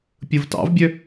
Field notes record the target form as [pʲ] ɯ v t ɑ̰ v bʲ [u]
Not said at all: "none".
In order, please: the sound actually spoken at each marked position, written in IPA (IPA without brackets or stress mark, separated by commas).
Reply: pʲ, ø